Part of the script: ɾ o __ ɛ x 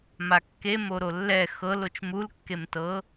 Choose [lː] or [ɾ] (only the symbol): lː